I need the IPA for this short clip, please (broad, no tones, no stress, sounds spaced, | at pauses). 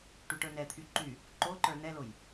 ʈ y ʈ ə˞ n ɛ t̪ʰ y ǃ y | ǃ o ǃ ə˞ n ɛ l o j